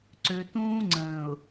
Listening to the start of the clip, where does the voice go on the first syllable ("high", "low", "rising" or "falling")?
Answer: low